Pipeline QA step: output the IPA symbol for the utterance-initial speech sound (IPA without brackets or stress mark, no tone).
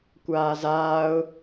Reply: kʷ